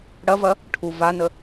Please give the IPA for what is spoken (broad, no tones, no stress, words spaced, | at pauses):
ɽɐvɐ | ʈʰu vanə